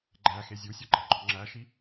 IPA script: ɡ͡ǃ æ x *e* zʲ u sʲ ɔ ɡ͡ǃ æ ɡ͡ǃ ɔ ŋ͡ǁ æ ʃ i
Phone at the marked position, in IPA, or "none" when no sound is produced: e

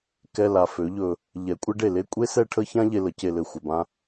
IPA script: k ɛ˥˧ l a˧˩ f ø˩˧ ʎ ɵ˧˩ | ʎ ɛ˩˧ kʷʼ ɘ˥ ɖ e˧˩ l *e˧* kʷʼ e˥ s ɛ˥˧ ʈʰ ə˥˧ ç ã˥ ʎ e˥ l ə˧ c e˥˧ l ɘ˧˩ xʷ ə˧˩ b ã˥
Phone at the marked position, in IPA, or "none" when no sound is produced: e˥˧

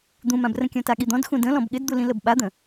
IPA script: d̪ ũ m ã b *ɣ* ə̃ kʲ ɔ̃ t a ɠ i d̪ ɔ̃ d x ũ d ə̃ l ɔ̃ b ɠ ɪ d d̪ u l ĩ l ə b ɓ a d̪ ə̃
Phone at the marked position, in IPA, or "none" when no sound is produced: r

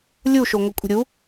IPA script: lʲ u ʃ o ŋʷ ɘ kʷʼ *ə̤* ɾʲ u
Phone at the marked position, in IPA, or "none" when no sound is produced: ə̤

